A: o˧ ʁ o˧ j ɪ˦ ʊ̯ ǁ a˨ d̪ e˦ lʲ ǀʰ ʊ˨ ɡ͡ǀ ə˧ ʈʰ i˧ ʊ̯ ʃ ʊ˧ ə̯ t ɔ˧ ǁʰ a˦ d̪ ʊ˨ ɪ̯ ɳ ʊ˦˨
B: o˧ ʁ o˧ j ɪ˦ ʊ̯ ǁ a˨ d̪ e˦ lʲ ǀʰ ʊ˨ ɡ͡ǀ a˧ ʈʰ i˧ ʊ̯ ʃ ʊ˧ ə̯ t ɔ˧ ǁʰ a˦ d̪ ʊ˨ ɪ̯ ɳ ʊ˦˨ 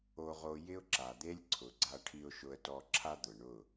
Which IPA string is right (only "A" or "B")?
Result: B